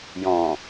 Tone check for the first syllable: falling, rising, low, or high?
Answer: low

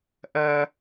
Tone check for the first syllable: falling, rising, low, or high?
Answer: high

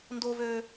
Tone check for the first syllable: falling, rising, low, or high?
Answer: high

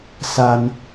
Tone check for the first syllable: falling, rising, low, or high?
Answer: high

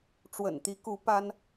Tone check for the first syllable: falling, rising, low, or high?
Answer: low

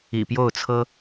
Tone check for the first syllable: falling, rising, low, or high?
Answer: low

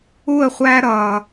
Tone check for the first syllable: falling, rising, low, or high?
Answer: falling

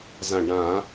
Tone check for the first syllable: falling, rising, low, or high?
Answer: low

